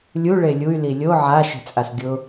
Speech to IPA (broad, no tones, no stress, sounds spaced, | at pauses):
lʲ u ɭ e lʲ u y̯ l i lʲ o ʕ a ʃ e̤ t͡sʼ a s ɡʲ ʊ